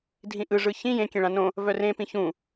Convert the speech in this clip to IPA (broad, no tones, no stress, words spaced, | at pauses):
dʱĩʔɯ ʐɯçĩ jẽ kʲẽɭãnõ | vœrẽ pĩçũ